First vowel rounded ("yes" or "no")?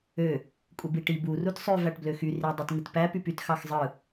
yes